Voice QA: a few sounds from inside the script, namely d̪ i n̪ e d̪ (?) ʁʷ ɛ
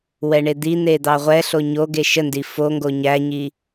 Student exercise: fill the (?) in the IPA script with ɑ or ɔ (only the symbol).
ɑ